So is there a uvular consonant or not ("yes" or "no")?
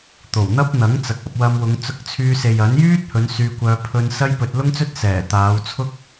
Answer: no